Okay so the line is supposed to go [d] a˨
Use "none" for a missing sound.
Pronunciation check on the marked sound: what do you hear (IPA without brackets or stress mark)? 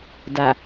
d